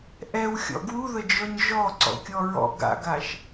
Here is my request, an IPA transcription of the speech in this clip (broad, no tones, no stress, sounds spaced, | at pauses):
ʔ ɛ w xʲ ɔ̰ ɡ w u ð ə d͡ʒ ɔ ɲ ʒ ɔ ǀ ɔ̰ kʲ ɔ ɹ ɔ̰ ɡ a̰ ɡ a ʃ